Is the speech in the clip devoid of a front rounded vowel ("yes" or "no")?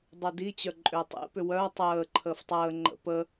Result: no